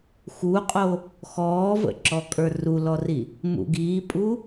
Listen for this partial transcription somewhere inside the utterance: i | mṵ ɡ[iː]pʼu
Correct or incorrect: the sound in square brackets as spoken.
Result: correct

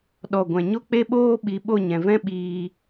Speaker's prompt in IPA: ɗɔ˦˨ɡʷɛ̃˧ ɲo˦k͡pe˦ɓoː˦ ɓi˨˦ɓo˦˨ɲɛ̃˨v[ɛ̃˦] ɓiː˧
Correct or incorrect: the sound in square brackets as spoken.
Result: correct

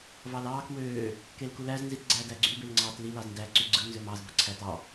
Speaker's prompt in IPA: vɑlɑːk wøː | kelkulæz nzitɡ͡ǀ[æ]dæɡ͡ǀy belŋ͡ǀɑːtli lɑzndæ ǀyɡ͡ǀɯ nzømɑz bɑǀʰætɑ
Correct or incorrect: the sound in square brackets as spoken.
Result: incorrect: æː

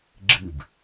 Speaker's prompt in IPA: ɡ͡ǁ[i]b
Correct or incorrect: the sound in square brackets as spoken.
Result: incorrect: ɨ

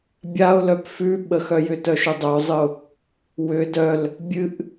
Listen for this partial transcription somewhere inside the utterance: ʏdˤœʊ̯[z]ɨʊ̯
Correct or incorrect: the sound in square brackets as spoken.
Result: incorrect: zˤ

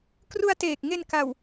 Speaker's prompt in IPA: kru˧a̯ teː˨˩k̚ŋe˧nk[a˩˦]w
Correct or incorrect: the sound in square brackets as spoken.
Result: incorrect: a˨˩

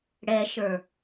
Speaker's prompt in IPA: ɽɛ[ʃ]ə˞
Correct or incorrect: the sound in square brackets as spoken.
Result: correct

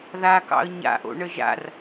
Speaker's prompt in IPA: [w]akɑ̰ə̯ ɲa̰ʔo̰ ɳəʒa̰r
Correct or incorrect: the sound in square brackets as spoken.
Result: incorrect: ð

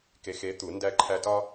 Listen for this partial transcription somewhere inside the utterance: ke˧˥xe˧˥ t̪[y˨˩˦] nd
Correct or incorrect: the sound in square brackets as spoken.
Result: incorrect: u˨˩˦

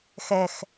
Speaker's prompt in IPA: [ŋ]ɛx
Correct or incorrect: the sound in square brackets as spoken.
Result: incorrect: x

